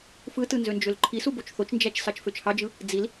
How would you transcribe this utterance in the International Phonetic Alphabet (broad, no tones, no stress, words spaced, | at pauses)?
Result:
fɯtɯ nzønd͡ʒølǃʰisu bot͡ʃθot͡ʃnd͡ʒæt͡ʃ sɑt͡ʃføt͡ʃhɑd͡ʒɯ | d͡zil